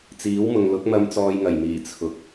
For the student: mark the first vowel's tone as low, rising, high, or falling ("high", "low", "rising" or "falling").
rising